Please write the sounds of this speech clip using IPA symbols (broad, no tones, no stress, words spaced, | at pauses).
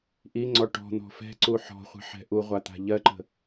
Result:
ʔiŋ͡ǀɔ ʈɔ̤ n̪ɔ̤fɛ̤ǀu ħɔ̤χʷə̤ ħɛ̤ʔuʁʷa t̪a̤ʎɜǃə̤